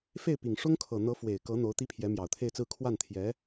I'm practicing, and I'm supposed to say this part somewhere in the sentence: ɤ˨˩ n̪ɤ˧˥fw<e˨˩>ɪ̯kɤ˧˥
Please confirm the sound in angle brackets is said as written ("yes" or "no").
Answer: yes